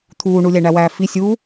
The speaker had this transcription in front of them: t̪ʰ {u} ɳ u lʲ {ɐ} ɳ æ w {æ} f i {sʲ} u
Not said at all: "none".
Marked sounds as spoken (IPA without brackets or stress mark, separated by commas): uː, æ, æː, sʲ